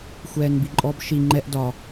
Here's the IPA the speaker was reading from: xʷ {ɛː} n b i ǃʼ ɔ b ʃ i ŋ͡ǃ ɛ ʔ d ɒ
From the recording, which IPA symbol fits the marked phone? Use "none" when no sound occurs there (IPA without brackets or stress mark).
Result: ɛː